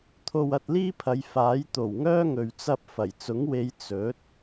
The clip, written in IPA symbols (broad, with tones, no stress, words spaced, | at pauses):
t̪ʰo˧wɐ˧t̚liː˥pʰɐ˨˧j faː˨˥jt̪o˨˩wŋœː˥ ŋɵ˨ɥt͡sɐ˧p̚ fɐ˨˩jt͡sʊ˨˥ŋwe˨˧j t͡sɵ˨˥t̚